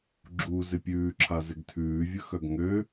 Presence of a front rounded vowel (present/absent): present